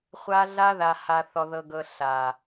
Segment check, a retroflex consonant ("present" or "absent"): absent